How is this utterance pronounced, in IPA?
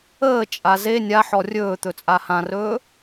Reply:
əː t͡ʃʼ a z e nʲ a ħ ɔ rʲ ɵː t̪ ɵ t͡sʼ a h ã r ɵː

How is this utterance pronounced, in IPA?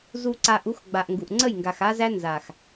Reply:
z u˨ ǀ a˨ ʔ u˨˦ x ɡ͡b a˨ ʔ ŋ ɡ u˨ ʔ ŋ͡ǀ ə˦˨ j ŋ ɡ a˨ x a˦ z æ˦ n z a˨ x

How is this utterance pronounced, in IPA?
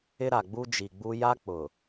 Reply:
ɪ˦ ɾ a˨ ɡ͡b u˦ d͡ʒ i˨ ɡ͡b u˦ j a˦ k͡p ʊ˨

